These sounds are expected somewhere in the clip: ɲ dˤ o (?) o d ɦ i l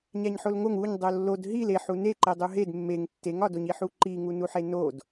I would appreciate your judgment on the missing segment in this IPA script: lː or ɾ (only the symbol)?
lː